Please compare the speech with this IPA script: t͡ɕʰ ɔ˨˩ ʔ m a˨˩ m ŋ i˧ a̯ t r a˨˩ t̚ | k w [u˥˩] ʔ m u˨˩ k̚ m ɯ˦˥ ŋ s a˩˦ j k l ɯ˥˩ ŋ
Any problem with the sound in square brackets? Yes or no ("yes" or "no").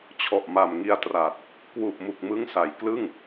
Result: yes